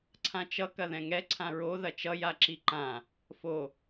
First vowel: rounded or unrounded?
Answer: unrounded